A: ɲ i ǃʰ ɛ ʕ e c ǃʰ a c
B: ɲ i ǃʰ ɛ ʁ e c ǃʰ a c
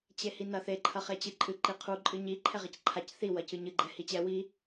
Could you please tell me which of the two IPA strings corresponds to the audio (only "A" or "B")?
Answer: B